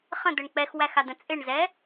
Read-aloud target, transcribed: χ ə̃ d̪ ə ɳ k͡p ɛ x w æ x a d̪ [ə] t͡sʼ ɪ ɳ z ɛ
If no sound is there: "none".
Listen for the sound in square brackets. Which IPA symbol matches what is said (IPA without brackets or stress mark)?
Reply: ə̃